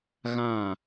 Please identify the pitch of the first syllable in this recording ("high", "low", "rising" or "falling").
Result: falling